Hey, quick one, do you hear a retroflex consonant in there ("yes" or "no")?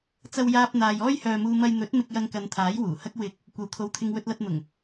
no